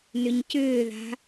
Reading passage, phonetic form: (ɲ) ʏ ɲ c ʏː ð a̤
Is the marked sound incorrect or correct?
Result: incorrect